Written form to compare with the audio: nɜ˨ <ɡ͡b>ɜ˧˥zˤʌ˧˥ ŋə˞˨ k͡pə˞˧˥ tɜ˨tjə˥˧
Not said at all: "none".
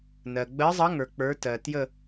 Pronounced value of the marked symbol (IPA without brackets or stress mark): ɡ͡b